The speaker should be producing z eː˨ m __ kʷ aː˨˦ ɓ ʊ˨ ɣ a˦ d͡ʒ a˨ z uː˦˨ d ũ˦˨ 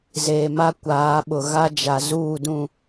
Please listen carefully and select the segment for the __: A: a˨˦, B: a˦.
B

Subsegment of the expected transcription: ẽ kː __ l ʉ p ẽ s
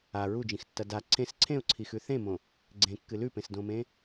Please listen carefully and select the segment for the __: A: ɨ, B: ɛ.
A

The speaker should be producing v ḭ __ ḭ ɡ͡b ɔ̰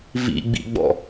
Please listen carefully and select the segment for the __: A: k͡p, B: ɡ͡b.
B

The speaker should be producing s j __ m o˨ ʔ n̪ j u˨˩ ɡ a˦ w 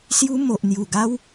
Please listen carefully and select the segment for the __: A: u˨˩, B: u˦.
B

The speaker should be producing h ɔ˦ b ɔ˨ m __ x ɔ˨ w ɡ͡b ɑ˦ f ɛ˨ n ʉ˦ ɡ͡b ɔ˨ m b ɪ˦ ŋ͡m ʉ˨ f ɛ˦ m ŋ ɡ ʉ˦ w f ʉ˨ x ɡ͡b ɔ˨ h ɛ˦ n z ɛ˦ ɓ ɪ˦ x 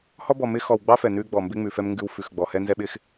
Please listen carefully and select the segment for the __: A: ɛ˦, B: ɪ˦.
B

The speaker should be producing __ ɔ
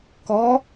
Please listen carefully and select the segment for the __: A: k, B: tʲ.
A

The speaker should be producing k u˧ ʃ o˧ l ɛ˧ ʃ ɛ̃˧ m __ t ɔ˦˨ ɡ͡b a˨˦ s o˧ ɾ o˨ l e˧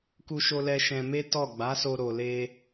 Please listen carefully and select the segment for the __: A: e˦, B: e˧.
A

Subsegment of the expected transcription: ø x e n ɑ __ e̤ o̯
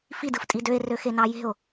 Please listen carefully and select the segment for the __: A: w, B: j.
B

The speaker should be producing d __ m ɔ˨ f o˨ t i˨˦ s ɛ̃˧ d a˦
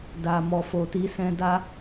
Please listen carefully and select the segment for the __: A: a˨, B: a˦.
A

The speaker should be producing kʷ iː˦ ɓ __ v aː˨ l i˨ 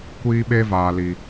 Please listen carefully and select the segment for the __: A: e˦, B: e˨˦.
A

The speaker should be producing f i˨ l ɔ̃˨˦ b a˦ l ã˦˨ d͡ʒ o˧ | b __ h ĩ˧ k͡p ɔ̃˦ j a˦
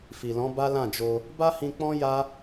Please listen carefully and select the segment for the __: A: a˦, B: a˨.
A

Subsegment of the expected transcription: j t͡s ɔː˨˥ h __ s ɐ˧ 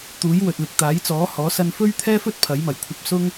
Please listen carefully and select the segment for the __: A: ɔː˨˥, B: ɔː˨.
A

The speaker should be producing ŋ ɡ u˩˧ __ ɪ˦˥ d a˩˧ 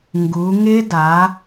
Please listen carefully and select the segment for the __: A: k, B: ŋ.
B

